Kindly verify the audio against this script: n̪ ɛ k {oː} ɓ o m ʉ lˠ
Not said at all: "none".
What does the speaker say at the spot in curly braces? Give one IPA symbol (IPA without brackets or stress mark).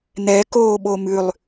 oː